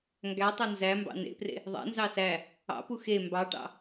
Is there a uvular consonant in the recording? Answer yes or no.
no